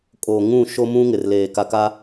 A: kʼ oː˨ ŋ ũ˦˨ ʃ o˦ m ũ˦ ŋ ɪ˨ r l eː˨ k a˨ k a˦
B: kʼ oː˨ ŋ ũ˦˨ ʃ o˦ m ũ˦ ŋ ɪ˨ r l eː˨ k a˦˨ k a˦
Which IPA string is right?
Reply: A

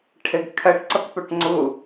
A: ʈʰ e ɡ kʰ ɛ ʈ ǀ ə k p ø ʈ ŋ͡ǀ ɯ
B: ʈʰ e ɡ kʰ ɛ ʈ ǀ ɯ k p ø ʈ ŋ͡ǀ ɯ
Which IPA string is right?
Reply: A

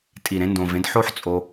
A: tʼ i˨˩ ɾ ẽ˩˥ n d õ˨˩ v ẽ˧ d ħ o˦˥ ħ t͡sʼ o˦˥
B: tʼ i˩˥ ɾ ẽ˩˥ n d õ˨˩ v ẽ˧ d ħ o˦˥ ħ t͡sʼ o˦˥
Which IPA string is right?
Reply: A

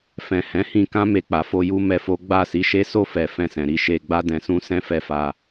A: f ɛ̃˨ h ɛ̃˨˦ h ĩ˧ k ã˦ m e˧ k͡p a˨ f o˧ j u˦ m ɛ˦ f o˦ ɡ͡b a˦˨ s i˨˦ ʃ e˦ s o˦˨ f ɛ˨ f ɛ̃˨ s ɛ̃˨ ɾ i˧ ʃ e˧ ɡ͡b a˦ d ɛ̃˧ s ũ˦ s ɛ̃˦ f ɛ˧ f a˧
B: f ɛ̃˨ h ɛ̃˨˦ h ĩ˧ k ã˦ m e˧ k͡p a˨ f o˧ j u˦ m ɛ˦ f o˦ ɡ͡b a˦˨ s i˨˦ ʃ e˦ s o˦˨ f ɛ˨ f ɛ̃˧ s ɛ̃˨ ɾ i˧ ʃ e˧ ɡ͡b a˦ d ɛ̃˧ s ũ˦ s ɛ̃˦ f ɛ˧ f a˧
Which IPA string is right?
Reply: B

